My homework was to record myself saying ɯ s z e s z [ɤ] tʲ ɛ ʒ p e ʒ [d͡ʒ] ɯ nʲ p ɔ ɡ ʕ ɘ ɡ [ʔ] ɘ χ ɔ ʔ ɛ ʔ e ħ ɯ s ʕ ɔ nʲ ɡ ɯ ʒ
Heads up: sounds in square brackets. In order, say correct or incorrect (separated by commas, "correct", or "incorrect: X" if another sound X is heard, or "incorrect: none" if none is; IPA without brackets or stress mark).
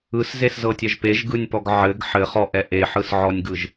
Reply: correct, incorrect: ɡ, incorrect: ħ